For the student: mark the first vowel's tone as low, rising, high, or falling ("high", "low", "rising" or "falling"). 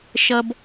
high